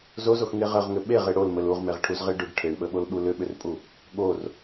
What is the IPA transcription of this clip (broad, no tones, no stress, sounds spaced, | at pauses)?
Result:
z o z o x ŋ e ʁ ə ʁ ŋ ʏ ɓ e ʁ e ɽ o l m ə l u ʁ m e ʁ ʈʰ u z ʁ e ɖ ʏ ɖ ʈʰ e ɳ ɓ ə ɓ o l ɓ u l ʏ ɓ ʏ r pʼ u | ɠ o r